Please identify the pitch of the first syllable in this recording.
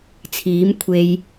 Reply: rising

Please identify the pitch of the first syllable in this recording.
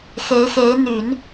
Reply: rising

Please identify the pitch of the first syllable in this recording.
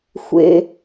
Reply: low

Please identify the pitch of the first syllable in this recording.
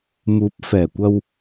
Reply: rising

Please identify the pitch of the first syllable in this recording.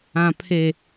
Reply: low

